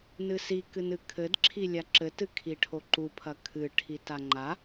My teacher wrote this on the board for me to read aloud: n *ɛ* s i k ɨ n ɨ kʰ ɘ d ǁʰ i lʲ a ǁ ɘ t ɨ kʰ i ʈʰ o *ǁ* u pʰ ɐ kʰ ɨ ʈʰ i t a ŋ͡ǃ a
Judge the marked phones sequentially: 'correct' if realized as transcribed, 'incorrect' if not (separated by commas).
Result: incorrect, incorrect